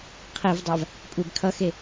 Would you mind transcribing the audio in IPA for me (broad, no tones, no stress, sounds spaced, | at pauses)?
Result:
qʰ i v dˤ a v | kʷʼ e b kʰ ʌ x e